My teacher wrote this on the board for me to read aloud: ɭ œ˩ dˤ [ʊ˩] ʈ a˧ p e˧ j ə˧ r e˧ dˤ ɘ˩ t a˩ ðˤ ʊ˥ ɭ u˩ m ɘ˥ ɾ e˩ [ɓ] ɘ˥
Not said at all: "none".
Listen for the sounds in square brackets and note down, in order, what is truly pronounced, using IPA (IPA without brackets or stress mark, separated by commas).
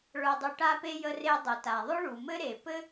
u˩, p